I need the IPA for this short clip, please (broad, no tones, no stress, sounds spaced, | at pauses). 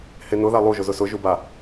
h e n ʊ ð a lˠ u ʒ ʊ z ʊ s ʊ ʒ u b a